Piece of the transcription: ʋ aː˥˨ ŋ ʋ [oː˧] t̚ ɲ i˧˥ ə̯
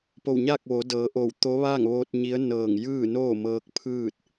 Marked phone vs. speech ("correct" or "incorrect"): correct